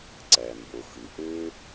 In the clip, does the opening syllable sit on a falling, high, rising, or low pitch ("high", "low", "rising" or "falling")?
low